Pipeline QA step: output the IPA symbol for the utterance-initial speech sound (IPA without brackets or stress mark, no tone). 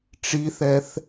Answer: ʈ͡ʂ